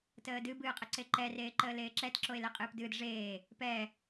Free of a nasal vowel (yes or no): yes